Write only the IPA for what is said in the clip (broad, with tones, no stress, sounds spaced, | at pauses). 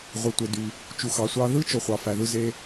ʁʷ e˩ tʷ e˩ d y˩ | t͡ʃ u˩ x ɑ˩ sʷ ɑ˧ ð ɯ˥ t͡ʃ o˩ χʷ ɑ˩ f æ˩ ð ɯ˧ z e˧